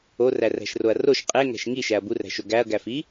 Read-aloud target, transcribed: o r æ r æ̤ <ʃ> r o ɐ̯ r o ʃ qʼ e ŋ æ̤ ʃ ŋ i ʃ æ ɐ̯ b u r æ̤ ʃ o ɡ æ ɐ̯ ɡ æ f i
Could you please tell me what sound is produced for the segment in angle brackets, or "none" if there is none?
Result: ʃ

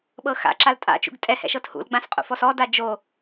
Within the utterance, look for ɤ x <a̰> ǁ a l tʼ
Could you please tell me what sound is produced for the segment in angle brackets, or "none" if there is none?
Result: a̰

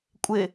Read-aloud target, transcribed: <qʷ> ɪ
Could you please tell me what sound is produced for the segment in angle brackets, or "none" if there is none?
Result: kʷʼ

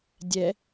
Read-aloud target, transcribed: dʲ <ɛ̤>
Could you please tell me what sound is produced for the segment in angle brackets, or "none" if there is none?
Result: ɛ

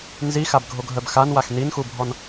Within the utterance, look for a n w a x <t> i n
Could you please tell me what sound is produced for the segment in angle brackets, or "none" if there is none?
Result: n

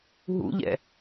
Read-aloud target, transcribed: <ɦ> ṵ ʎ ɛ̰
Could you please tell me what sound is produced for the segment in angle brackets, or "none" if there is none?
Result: ɦ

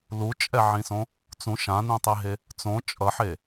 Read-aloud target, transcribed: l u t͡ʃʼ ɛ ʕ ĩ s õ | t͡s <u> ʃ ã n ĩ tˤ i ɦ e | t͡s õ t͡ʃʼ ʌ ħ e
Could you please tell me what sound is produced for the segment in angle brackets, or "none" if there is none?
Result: ũ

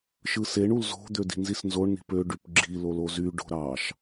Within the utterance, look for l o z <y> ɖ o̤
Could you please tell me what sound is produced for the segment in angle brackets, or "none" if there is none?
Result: y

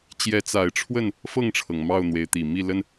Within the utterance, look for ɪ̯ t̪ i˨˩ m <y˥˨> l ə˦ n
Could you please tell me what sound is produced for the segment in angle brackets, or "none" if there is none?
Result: i˥˨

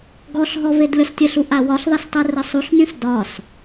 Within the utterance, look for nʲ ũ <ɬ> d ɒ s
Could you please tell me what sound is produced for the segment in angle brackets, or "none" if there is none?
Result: s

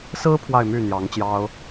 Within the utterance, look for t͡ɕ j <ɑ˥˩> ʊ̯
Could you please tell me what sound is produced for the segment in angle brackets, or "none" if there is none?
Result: ɑ˥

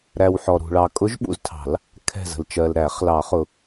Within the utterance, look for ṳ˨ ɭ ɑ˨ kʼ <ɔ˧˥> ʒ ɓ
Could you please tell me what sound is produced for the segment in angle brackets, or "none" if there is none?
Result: ʊ˧˥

